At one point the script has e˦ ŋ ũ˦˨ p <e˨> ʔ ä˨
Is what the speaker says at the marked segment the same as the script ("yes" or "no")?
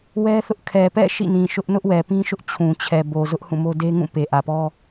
yes